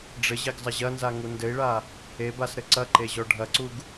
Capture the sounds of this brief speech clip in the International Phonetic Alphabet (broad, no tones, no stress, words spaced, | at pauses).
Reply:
ɖ͡ʐɘʑeɡzˤɐ ʑɐnzaŋu ndɘi̯ɭa | ebasɾɘ ǀɐǃeʑɔ ɖʱɐǀuɡ